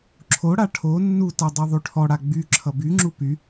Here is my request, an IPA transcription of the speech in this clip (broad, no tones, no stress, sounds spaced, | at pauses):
ǁʰ o ɽ a ʈʰ o nː u t a dˤ i ðˤ y ʈʰ ɔ ɽ a ɡ͡b y ǁʰ ʌ b y ŋ͡ǁ u p y